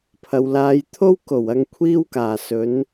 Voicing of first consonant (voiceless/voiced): voiceless